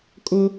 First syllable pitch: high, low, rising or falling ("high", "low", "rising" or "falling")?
high